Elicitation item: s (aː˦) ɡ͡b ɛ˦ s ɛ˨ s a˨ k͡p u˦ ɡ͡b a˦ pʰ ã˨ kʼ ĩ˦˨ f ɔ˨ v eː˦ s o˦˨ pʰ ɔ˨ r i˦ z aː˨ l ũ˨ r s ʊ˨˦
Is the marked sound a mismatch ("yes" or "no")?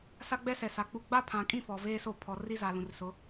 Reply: yes